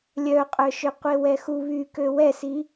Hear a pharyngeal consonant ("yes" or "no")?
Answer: no